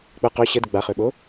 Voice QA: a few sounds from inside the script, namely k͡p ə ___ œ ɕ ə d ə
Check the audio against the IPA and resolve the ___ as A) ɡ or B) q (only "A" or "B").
B